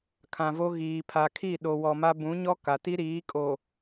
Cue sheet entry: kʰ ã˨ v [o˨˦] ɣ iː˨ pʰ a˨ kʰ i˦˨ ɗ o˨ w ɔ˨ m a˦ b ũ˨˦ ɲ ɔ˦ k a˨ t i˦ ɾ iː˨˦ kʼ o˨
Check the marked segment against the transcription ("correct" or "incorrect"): incorrect